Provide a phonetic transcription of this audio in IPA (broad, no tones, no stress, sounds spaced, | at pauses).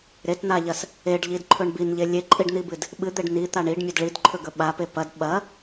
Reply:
ɾ e t n̪ a ʎ ɐ s | e ɖ ʎ i d ǃʰ ɵ ɳ b i n ʎ e lʲ e ǃʼ i ɖ n̪ i b ɨ d | ɓ ɨ d̪ e ɖ n i t̪ a ɳ i ɖ mʲ ɵ d ɭ i d ǃʰ ɵ ɡ ɵ ɓ a p e p ɐ d ɓ ɐ